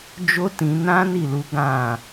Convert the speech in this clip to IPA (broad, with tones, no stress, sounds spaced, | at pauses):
d͡ʒ o˦ t ĩ˧ n ã˦ n i˦˨ l u˨˦ ɡ ã˦˨